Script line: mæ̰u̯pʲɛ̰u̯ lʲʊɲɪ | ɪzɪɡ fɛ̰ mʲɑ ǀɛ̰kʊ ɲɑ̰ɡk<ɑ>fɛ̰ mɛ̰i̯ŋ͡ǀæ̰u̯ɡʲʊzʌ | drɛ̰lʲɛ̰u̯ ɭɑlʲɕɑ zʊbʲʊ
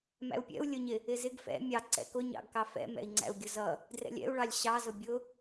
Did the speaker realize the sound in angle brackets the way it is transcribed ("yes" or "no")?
yes